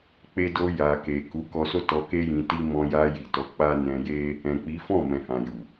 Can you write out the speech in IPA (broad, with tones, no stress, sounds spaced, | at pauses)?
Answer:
k͡p e˧ d o˧ j a˨ k e˨ k u˨˦ k ɔ˧ s o˦ t ɔ˧ k e˦ j ĩ˧ t i˦ m ɔ̃˧ j a˧ j i˨ t ɔ˨˦ k͡p a˦ n ɛ̃˧ j e˦ | ɛ̃˨ k͡p i˨˦ f ɔ̃˦˨ m ɛ̃˨ h ã˨ j u˨